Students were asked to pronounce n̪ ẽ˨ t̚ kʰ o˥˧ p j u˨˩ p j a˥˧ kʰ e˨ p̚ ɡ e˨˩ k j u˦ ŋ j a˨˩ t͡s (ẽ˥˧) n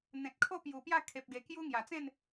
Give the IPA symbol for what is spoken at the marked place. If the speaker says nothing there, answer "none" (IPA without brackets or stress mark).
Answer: ẽ˥˧